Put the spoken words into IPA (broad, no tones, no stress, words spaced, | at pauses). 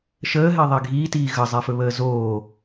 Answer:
ʃəːɦɛðˤɛ ɡʱiːtiː ɣəzˤɛfɵβəː zoː